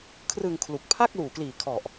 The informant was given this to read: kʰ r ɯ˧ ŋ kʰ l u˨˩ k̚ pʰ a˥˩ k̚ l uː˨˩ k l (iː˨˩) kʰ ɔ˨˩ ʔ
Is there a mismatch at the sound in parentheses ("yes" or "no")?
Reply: no